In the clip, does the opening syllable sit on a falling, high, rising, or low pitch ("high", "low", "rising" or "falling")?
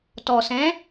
low